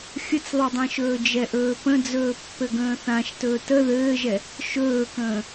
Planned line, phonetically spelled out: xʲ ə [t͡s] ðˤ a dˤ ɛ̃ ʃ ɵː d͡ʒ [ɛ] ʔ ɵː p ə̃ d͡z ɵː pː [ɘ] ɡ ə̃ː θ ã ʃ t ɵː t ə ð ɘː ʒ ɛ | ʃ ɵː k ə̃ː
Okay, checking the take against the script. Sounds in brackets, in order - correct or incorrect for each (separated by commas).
correct, correct, correct